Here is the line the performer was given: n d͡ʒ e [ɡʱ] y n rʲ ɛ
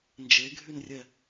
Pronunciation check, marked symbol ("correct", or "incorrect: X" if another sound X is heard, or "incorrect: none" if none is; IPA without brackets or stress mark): correct